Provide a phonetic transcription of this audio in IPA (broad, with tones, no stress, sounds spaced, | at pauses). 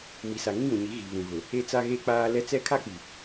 m i˨ s a˨ ŋ ĩ˦ j ũ˨ ɲ i˨˦ ɣ i˨ β ũ˨ ɣ ʊ˨ | e˦ t͡s a˦ ɣ e˦ k͡p aː˦ l ɛ˦ t͡s ɛ˦ kʰ a˦ k͡p i˨